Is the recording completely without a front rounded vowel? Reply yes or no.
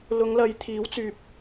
no